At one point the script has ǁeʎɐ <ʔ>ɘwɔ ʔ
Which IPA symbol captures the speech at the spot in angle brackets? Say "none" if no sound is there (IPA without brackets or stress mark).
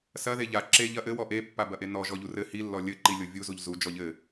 ʔ